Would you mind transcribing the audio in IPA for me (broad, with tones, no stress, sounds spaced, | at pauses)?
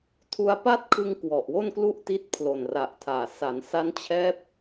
tʰ u˦˥ a̯ p a˥˩ t̚ kʰ ɯ˧ ŋ k w ɔ˨˩ ʔ w o˥˩ n k l u˥˩ ʔ t i˦˥ t̚ pʰ l o˨˩ n r a˨˩ ʔ tʰ aː˨˩ s a˩˦ n s a˦˥ n t͡ɕʰ ɛː˦˥ p̚